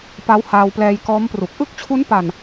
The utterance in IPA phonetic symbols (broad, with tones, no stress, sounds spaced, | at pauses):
p a˦˥ w h aː˧ w p l ɛː˧ j k ɔː˦˥ m p r u˨˩ k̚ ʔ ɯ˥˩ k̚ t͡ɕʰ u˦˥ n p a˨˩ n